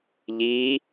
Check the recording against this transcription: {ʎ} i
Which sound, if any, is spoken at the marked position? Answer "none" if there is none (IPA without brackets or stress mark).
ʎ